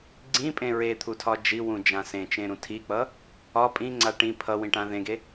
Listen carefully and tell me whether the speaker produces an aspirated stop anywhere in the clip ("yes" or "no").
yes